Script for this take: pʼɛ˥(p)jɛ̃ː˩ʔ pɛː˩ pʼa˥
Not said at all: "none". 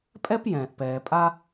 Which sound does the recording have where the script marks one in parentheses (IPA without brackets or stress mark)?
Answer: p